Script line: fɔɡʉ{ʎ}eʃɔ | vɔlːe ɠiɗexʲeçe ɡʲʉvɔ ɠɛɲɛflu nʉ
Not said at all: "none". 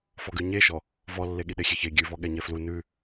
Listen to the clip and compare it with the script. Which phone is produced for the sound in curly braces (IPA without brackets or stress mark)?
ɲ